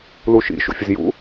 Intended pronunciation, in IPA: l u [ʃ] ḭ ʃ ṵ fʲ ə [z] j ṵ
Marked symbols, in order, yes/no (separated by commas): yes, yes